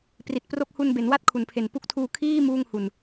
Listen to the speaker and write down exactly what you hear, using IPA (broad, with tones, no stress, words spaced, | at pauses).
pri˨˩t̚pro˦˥k̚hu˧n be˩˦nwa˥˩t̚kʰu˩˦npʰe˨˩n pu˦˥k̚tʰuː˧ kʰiː˥˩ muː˥˩ŋhu˧n